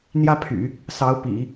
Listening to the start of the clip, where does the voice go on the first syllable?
high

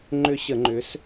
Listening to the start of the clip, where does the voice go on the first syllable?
falling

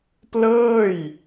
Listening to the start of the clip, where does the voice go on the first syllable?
falling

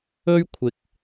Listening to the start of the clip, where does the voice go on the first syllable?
high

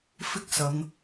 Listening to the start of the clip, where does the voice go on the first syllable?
high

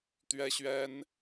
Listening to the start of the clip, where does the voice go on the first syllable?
high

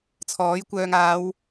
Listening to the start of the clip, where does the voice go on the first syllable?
rising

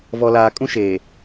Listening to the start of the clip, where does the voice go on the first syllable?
low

